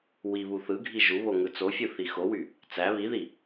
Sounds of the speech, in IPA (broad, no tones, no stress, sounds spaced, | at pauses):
w i β u θ ɯ ɡʱ i ʒ u β o ŋ ɯ t͡s o fʲ ɯ θ i x o w y | t͡s æ β i ð i